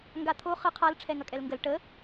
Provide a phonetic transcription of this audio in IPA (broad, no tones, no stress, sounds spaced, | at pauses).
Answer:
ŋ ɡ a t̪ʰ o χ ə qʰ a l ʈ͡ʂʰ ɛ ŋ ɐ kʼ ɛ l ŋ ɡ ə l ʈ ə